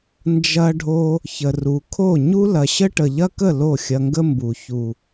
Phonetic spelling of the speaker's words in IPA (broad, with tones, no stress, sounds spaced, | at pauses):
n d͡ʒ ɐ˧ ɖʱ o˧ | ç ə˨ r u˨ kʰ o˦˨ ɲ u˦ l ɐ˨ ɕ ə˦ ʈ ə˨ ʎ ɐ˦ k ə˦˨ l o˦˨ xʲ ɐ˧ ŋ ɡ ə˦ m b u˨ ç u˨